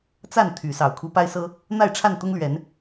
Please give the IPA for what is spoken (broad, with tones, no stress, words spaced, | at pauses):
t͡sa˥˨n t̪ʰy˨˦sɑ˨˩ʊ̯ kʰu˨˦pa˦ɪ̯sɤ˦ | n̪a˥˨ɪ̯ʈ͡ʂʰa˥˨n t̪ʊ˦ŋlɥɛ˨˦n